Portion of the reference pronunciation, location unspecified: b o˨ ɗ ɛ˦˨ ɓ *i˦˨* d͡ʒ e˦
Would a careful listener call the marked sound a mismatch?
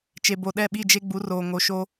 no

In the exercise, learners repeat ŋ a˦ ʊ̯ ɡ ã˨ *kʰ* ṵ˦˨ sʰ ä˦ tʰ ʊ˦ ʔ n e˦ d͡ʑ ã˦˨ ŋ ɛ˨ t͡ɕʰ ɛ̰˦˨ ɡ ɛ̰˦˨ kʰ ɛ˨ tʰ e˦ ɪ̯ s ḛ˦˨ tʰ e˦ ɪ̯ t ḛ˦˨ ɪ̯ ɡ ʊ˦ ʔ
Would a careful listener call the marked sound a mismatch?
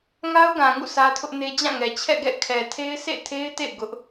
yes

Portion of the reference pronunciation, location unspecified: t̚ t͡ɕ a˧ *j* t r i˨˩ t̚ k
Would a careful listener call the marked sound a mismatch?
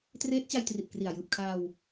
no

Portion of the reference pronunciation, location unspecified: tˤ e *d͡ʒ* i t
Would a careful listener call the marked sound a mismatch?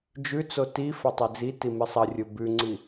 yes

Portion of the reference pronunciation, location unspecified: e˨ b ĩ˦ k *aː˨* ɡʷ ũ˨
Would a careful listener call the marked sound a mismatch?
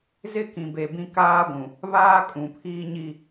yes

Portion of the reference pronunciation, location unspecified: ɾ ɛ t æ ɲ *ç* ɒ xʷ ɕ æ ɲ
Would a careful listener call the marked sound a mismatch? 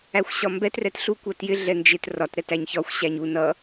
no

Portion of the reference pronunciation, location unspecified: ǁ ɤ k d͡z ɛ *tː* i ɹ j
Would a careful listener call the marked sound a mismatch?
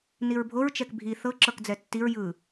no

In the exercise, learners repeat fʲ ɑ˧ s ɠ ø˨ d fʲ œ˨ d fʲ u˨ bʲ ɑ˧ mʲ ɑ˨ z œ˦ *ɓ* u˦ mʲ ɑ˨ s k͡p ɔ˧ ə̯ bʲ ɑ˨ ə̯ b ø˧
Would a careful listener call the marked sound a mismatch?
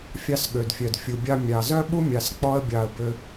no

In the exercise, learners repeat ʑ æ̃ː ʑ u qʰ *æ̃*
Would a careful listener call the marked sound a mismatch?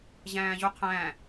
no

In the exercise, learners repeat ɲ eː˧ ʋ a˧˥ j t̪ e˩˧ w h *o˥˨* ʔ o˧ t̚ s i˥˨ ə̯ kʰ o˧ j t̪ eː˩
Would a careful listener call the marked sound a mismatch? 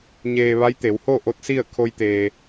no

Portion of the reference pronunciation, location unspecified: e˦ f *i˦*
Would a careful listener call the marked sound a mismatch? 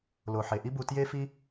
no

